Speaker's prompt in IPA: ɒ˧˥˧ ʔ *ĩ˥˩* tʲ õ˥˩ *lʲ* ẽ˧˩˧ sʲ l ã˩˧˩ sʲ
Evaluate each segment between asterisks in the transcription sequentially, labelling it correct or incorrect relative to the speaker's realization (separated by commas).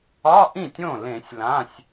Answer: correct, incorrect